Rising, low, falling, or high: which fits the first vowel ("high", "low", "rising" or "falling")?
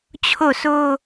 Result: falling